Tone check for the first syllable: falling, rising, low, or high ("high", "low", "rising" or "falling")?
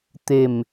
low